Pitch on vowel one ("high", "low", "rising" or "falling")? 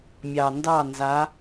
low